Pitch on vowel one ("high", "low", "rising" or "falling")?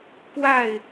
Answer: falling